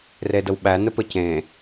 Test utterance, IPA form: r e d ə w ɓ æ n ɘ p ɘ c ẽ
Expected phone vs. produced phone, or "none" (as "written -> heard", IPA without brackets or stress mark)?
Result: none